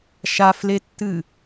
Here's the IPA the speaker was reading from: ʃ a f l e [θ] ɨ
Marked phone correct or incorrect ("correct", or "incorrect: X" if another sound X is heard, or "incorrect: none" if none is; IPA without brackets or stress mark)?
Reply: incorrect: tː